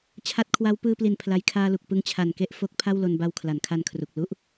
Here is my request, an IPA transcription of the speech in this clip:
t͡ɕʰa˦˥t̚kʰwa˦˥w pɯː˧pli˨˩n pʰla˦˥j kʰaː˧lu˨˩k̚ pɯ˦˥ŋt͡ɕʰa˨˩nke˥˩ʔ fo˦˥k̚ pʰa˥˩wlo˧nba˧w kʰla˩˦nkʰa˧nkʰru˨˩k̚ lu˥˩ʔ

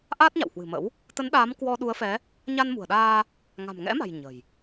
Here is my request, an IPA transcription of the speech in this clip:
ʔaː˦˥t̚ɲa̰˧˨whwɨ̤˨˩mə̰˧˥w | t̪ə˨˦nɗaː˨˦m kwɔ˧ɗu˨˦ə̯fɛ˨˦ | ɲa˧nmṳ˨˩ə̯ɗaː˧ | ŋa̤˨˩mŋɛ̰˧˥ma̤˨˩j ɲə̤˨˩j

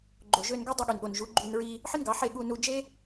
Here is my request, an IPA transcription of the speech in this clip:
ɡ͡ǃo˨ ʒø˧nɡø˦ dˤe˧ɠy˨nɠo˨nʒu˨˦ ɡ͡ǃy˧nɹi˧ | ħɯ˦nɡɑ˨˦ ħe˦˨ɠu˧nu˧ d͡ʒe˦

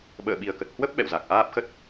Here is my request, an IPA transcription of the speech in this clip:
ɓə̰ː˧˨ɓi˨˩ə̯kə˨˩t̚ hwə˦˥p̚ ɓɛ̰˧˨wza˨˩k̚ʔaː˦˥p̚xə˦˥t̚

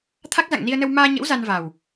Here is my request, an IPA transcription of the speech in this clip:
t̪ʰa˦˥k̚za̰˧˨ŋni˧ə̯nə˧w maː˧ɲə̰˧˥w za˧nva˨˩w

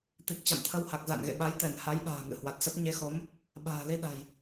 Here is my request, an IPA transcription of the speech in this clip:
t̪i˨˩k̚t͡ɕa̰˧˨mt̪ʰə˧w ha˨˩k̚za̰˧˨nɣḛ˧˨ɓa˨˦j t̪ɛ˧˩n ha˨˦jɓa̤ː˨˩ ŋɨ̰˧˨hwa˨˩t̚sə˦˥p̚ ɲe˨˦xo˨˦m | ɓa̤ː˨˩li˧ɗa̤˨˩j

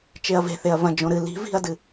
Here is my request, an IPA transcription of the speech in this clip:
t͡ʃeɐ̯ve̤θeɐ̯ vɐ̃ d͡ʒõɾɨ li̤ vi̤ɐ̯dɨ

